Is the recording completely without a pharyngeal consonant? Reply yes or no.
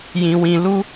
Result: yes